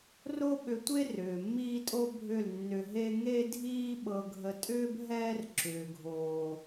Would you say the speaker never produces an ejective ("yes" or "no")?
no